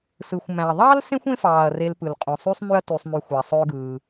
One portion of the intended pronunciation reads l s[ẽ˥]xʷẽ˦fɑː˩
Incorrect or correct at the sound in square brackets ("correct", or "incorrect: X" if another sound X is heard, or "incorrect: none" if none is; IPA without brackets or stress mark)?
correct